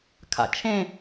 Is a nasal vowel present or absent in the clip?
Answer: present